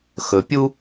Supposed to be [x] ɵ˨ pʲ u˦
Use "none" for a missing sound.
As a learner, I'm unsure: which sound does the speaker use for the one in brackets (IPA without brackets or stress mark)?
x